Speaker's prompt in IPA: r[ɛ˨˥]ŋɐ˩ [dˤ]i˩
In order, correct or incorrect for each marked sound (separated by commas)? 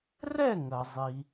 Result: incorrect, incorrect